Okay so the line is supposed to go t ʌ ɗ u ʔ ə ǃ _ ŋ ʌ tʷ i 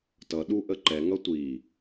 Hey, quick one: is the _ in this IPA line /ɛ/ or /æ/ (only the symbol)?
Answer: ɛ